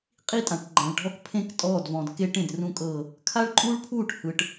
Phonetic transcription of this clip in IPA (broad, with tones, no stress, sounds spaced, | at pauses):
qʼ i˦ tʼ ã˨ ʈ ɡ͡ǃ ã˨ ɭ ɖʱ ɔ˦ k pʰ ẽ˦ k tʼ ɔː˦˨ d v ɔ̃˨ d k e˦ ʈ ẽ˨ d r ũ˦ kʼ ɤ˦˨ | kʰ a˦ ɭ ǃʼ uː˦ ɭ pʰ uː˦˨ ʈ h ɯ˨ ʈ